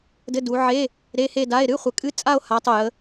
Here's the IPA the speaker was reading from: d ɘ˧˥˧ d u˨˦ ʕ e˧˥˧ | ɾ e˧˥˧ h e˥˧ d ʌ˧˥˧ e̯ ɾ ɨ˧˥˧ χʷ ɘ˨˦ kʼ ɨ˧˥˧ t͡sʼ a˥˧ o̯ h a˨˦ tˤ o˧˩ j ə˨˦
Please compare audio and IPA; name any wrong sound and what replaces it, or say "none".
ʌ˧˥˧ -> a˧˥˧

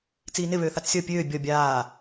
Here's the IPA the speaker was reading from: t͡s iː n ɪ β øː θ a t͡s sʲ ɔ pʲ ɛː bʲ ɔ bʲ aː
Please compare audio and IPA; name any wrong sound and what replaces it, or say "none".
ɛː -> øː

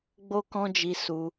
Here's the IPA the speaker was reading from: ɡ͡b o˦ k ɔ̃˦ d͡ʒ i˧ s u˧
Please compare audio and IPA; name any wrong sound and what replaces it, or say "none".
none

